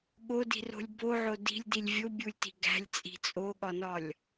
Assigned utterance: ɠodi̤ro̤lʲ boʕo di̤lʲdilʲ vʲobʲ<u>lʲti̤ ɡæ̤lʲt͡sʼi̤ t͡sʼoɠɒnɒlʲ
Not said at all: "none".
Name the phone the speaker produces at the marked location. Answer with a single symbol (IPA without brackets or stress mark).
u